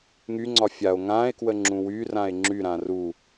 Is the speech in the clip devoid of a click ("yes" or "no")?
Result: no